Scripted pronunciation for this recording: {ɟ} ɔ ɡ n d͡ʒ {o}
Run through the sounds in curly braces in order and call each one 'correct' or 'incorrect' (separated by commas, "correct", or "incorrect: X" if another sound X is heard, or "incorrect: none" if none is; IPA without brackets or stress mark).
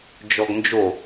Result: incorrect: d͡ʒ, correct